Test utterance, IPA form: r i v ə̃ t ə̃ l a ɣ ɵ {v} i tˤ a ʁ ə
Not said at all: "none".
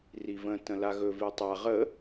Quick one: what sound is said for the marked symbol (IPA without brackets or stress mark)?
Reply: v